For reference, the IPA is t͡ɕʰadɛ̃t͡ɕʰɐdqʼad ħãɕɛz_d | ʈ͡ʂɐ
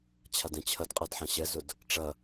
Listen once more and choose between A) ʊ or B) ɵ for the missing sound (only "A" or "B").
A